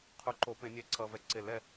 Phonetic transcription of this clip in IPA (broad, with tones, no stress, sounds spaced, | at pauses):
qʰ u˨ ǃ o˨˩˦ p ẽ˨˩˦ nʲ ɛ˨˩˦ ǀ ʌ˨ v ɛ˨ ǀ e˨˩˦ l ɛ˨